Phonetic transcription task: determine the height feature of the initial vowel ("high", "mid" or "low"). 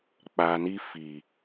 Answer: low